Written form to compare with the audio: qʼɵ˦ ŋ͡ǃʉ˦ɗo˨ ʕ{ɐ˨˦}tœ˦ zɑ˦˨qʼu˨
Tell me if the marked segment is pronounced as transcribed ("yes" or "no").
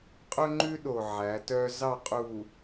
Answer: no